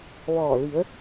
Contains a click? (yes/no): no